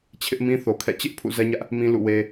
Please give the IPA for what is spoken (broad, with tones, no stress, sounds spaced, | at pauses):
t͡ɕʰ ɪ˦ ʔ m ĩ˦ θ o˨ kʰ ɛ̰˦˨ t͡ɕ ɪ˦ ʔ pʰ ṵ˦˨ z ɛ˦ ɲ ä˦ ʔ | m ĩ˦ l ṵ˦˨ w e˦